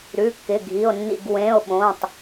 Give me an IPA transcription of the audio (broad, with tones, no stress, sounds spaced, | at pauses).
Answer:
ɾ ʉ˩˧˩ kː ɪ˩˧˩ ɡʱ i˩˧˩ o̯ nː ḭ˧˩ ɡ w ẽ˩˧˩ o̯ ɓ õː˩˧˩ tˤ